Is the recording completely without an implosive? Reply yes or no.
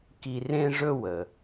yes